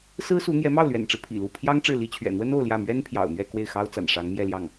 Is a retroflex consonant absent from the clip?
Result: no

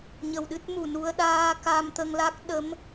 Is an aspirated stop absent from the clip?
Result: yes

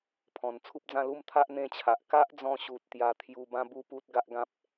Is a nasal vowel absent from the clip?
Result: no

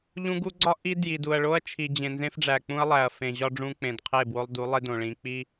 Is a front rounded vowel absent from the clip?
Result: yes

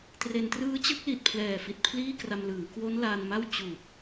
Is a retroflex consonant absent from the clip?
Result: yes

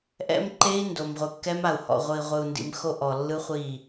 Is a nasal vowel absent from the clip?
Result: yes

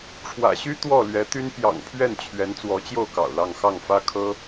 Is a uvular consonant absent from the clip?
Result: yes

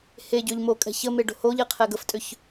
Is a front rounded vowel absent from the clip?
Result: no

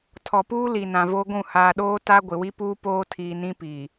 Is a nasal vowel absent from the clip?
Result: no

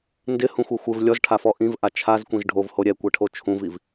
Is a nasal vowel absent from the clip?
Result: no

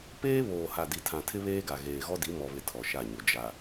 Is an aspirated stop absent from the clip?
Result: no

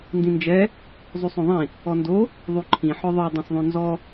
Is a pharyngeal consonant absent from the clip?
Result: no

